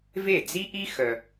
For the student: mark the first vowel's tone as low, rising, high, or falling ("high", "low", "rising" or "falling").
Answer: falling